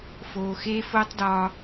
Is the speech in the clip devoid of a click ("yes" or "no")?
yes